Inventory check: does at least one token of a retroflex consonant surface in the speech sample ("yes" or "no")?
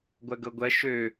no